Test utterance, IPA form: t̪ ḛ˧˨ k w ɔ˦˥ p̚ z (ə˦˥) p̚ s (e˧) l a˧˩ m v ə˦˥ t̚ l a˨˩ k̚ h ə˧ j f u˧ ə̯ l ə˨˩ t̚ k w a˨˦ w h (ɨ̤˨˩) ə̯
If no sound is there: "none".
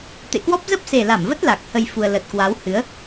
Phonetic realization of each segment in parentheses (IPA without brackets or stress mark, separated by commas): ə˦˥, e˨˩, ɨ˨˦